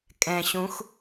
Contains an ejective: yes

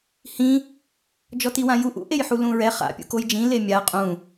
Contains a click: no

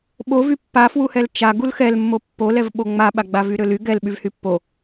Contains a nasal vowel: no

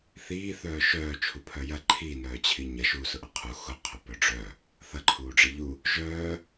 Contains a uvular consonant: yes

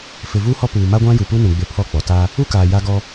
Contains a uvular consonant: no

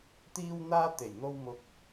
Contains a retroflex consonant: no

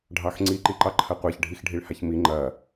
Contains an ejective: no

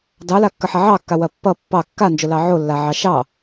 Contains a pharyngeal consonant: yes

